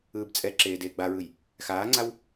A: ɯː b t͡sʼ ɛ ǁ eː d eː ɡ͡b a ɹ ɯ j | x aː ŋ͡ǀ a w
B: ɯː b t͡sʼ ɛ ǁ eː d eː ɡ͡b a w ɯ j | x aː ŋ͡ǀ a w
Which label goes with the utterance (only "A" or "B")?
A